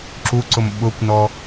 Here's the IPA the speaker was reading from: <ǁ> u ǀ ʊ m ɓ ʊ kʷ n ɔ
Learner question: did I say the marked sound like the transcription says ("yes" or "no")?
yes